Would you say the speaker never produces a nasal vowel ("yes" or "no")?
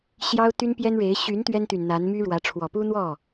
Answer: yes